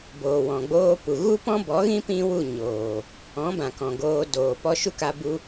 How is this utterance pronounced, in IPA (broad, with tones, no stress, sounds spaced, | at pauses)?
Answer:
b oː˨ w ɔ̃˨ ɡ͡b oː˧ p u˨ ɣ u˦ p ɔ̃˦ b ɔ˨˦ ɣ ĩ˦ p ĩ˦ w u˦˨ ɲ oː˨ | ɔ̃˨˦ b ã˨ k ɔ̃˨ ɡ oː˧ d oː˨ p ɔ˧ ʃ u˦ k a˧ b u˦